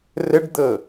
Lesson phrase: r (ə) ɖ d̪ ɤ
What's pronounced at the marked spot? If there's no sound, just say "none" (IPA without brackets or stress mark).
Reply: ə